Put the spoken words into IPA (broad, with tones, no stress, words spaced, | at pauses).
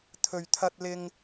t̪ʰɵ˨ɥt̪ʰɐ˧t̚lɪ˧ŋ